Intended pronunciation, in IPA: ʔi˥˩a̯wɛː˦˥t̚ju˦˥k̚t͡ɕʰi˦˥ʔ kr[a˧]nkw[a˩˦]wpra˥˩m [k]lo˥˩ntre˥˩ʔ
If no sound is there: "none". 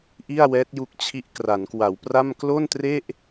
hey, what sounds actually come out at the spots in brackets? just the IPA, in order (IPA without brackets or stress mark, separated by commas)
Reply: a˩˦, a˩˦, k